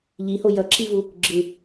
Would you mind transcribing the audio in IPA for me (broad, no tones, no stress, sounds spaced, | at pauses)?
ʎ i h o j ʌ ǁ i v u | ɡ͡ǁ ɯ